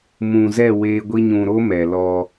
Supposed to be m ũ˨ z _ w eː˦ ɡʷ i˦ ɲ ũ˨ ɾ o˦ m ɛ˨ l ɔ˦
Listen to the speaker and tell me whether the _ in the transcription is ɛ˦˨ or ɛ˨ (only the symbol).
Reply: ɛ˦˨